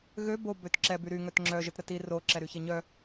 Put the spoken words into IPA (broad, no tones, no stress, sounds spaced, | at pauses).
ɣ ø b o b ø t ǁ ɛ b y ɾ y ŋ œ t ŋ͡ǁ œ ʒ ə t ɾ ə t i r o ǁ ɛ ɾ y ç e ɲ œ